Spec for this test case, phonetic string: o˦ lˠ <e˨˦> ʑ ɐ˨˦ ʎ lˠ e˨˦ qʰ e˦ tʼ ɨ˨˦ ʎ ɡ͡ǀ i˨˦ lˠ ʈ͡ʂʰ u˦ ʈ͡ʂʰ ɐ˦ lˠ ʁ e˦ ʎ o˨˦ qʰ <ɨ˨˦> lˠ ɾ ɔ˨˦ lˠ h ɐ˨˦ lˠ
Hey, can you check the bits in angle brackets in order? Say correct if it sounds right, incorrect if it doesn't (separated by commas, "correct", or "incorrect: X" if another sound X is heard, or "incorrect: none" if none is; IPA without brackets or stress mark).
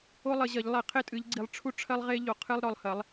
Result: incorrect: ɘ˨˦, incorrect: ɨ˦